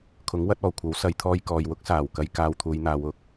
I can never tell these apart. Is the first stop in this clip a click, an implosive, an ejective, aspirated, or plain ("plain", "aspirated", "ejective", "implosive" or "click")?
aspirated